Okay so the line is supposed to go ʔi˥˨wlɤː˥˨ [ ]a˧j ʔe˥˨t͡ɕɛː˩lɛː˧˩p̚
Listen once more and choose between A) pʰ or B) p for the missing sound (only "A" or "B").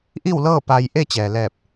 B